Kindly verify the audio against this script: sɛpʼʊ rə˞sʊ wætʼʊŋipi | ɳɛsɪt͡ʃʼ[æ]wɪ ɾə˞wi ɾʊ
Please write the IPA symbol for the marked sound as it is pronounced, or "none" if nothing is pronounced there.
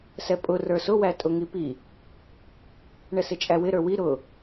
æ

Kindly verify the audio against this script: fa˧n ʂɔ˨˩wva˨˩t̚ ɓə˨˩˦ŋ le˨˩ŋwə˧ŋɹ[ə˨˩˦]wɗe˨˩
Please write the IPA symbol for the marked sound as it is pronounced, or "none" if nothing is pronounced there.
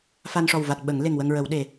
ə˨˩˦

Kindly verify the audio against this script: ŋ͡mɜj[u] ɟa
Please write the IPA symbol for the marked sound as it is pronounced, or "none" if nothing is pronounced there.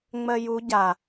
u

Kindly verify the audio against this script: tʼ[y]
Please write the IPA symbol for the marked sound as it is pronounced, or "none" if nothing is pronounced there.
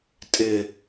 ɪ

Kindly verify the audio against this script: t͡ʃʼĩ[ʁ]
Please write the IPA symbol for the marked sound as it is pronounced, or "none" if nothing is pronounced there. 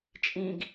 ɡ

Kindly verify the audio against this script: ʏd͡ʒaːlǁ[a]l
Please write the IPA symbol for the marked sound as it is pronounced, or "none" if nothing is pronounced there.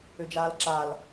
a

